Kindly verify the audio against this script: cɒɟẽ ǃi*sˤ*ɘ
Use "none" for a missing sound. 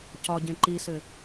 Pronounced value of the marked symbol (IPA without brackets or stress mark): s